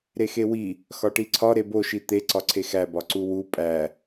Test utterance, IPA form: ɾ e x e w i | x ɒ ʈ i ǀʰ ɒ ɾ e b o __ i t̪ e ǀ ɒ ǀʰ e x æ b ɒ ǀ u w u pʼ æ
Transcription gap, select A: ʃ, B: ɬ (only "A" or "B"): A